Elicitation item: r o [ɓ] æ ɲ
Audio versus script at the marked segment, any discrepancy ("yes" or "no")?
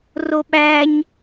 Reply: no